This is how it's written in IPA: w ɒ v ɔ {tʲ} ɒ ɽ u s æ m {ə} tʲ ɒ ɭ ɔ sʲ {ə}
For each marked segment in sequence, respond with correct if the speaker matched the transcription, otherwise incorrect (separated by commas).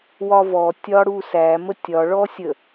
correct, correct, correct